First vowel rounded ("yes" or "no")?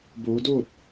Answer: yes